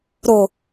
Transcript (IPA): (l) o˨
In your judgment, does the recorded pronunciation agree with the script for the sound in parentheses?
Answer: no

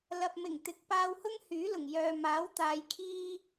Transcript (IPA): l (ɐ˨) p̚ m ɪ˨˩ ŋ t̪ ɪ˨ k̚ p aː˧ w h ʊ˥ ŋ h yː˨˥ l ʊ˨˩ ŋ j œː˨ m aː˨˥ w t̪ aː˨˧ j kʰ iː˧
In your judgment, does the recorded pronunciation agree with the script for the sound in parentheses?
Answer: yes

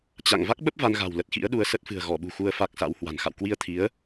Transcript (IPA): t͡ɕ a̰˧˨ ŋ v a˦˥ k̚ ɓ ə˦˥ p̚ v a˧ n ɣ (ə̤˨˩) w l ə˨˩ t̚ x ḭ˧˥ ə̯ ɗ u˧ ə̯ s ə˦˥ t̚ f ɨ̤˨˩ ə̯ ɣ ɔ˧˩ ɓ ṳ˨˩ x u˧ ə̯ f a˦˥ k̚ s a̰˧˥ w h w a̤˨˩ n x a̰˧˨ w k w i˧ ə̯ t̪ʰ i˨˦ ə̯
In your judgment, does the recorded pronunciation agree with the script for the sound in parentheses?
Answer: no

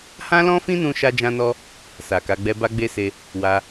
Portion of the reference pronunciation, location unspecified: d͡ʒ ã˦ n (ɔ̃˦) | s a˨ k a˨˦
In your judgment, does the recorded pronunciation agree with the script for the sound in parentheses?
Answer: no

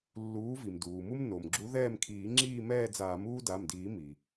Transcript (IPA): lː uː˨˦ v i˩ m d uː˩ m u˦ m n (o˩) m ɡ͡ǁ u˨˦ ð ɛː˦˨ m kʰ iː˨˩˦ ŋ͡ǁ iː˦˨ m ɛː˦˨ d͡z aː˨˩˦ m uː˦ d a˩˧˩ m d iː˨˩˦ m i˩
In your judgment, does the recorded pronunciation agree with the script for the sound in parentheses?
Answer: yes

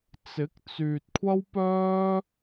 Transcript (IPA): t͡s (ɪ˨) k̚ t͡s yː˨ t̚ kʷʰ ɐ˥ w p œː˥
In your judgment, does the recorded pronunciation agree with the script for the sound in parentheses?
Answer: no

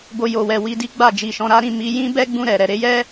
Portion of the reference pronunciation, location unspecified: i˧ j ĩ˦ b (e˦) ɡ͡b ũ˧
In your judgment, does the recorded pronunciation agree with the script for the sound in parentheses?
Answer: no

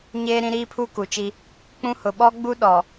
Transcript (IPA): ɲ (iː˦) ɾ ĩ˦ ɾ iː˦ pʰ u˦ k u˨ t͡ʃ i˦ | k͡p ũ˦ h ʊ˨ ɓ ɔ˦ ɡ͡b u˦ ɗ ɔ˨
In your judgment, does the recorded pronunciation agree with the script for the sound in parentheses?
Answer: no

